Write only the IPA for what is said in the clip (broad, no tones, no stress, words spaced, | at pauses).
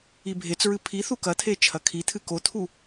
ibʱet͡sɹɨ pʰi θukɐt̪ʰe t͡ʃʰɐkʰit̪ʰɨ kot̪ʰu